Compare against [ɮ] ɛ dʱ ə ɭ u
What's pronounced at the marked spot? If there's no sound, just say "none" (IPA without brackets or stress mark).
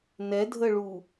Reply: n